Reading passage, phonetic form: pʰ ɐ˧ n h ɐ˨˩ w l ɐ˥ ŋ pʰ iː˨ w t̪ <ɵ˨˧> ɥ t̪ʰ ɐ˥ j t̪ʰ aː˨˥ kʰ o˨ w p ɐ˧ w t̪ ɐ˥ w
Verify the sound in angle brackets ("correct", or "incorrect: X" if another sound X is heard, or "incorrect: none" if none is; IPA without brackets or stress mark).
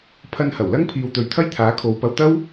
incorrect: ɵ˨